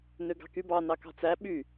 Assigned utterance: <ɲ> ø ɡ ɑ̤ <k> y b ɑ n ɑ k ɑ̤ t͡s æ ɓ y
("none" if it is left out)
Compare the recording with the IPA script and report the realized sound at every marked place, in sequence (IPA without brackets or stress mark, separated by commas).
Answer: n, k